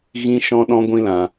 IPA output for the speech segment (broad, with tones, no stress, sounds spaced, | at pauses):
ɣ ĩ˦ ʃ ɔ̃˦ ɗ ɔ̃˦ ɡʷ ĩ˧ l ã˨